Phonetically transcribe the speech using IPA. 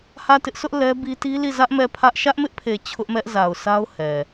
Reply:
h ä˦˨ t ɪ˦ ʔ s ʊ˦ ʔ l ɛ˦ b i˦ t i˦ l i˦˨ z ä˦ ʔ m ɛ˦˨ pʰ ä˦ ʔ ʃ ä˦ ʔ m ɪ˦ ʔ pʰ e˨ t͡ɕʰ ʊ˦ ʔ m ɛ˦ ʔ z a˨ ʊ̯ s a˦ ʊ̯ h ɛ˨

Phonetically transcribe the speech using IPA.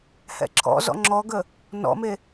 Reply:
h ɛ̰ ǁʰ ɔ̰ z ɔ̰ ŋ͡ǁ ɔ ɡ ə | n ɔ̰ m e

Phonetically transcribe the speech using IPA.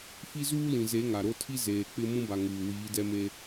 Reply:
f i˦ z uː˦ l ĩ˨ z e˨˦ ŋ a˨ ɾ o˦ tʰ i˦ z eː˨ k͡p ɪ˦ m ũ˦ b a˨ ŋ uː˨ w iː˨˦ d ɛ˦ m e˦

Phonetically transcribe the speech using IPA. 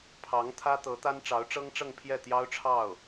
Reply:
pʰ ɑ˧˥ ŋ t̪ʰ ä˥ t̪ ɤ˧˥ t̪ a˥ n ʈ͡ʂ ɑ˧˥ ʊ̯ ʈ͡ʂ ɤ˥ ŋ ʈ͡ʂ ɤ˥˧ ŋ pʰ j ɛ˥˩ t̪ j ɑ˥ ʊ̯ ʈ͡ʂʰ ɑ˥˩ ʊ̯

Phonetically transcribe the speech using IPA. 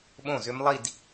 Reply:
ɓ õ˥˩ z ʏ˦˥ m lˠ i˥˧ d

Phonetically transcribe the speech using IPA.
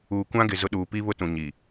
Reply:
uː˨ kʷ ã˦ ɡ ɪ˨ z ʊ˦ ɗ uː˨ p i˦ β ʊ˦ t ũ˨ ɲ i˨

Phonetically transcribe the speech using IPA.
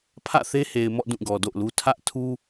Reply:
pʰ ä̰˦˨ θ e˦ h e˨ ɪ̯ m ɔ̰˦˨ d ũ˦˨ ɡ ɔ˨ d o̰˦˨ ʊ̯ l u˦ tʰ ä˦ ʔ tʰ u˦

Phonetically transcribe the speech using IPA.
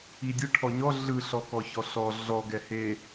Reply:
i dʲ ɯ ʈʰ ɔ ɲ ɔ ɮ ɯ ɬ ɔ k ɔ ç ɔ ɬ ɔ ɮ ɔ ɡ ɛ h e

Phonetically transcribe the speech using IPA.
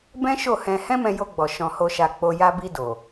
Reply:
b ɛ̃˦ ʃ o˦˨ h ɛ̃˧ h ɛ̃˦ m ɛ̃˧ j o˧ ɡ͡b ɔ˨ ʃ ɔ̃˧ h o˧ ʃ a˧ k͡p o˧ j a˧ b i˧ d o˨

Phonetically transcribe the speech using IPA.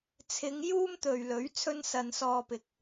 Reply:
t͡sʰ ɪ˨˧ ŋ j uː˥ m t̪ ɵ˨ ɥ l ɵ˨˥ ɥ t͡sʰ ɵ˥ n s ɐ˧ n s ɔː˧ p ɪ˨ k̚

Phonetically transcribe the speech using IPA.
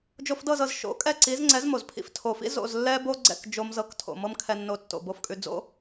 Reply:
d͡ʒ o˧ f d ɤ˥˩ z ɤ˩ z ʃ o̰˩˥ kʼ ɛ˥˩ ǀ i˩˥ z ŋ͡ǀ ɛ˩˥ z m o˩ z pʰ ḭ˩˥ f tʰ o˩ f ḭ˥ z o̰˥˩ z lː ɛ˥ b o˥ ɡ͡ǀ ɛ̰˥˩ k d͡ʒ o˧ m z ɤ˩˥ k tʰ o̰˩ m ɤ˥ m kʰ ɛ˧ nː o˧ tː o̰˩ b o˥˩ f kʼ ʉ˧ d͡z o̰˥

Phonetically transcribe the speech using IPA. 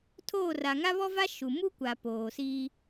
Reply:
tʰ oː˦˨ r a˨ ŋ a˦ β ɔ˦ v a˦ ʃ u˨ m u˦ kʷ a˨ p oː˨ s iː˦

